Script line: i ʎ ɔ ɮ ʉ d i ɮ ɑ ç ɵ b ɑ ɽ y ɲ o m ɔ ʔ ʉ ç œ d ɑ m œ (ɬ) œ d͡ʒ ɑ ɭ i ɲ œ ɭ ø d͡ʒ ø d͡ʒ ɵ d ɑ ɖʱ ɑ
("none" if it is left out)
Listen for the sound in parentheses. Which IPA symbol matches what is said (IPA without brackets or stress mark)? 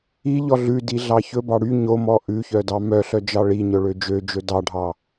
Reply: ɬ